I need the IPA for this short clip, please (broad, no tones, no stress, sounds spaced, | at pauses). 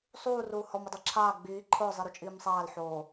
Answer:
sˤ uː r uː h ɔ m ʊ dˤ e ǁʰ aː ɡ͡b iː ǃʰ ʊː zˤ i ɾ u t͡ʃʼ iː m sˤ aː l ħ oː